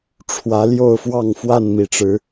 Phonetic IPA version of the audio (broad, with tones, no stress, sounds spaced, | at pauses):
ʈ͡ʂʰ w ä˨˦ l j o˥˨ ʊ̯ f w ɑ˥˨ ŋ f w a˥˨ n m i˩ ʈ͡ʂ ɻ̩˨˦